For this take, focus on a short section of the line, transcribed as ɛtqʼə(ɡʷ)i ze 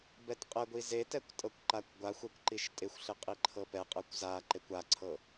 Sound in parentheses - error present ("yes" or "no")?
no